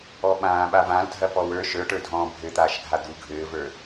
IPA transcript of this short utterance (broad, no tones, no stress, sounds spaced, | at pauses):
ɔ ɓ ãː ɓ a v ã l dʱ ɐ p ɔ w ə˞ ʃ ə˞ ʈ ə˞ dʱ ɔ̃ː bʱ ɘ t̪ aː ʃ ɡʱ a d̪ u ɡʱ ɘː v ə˞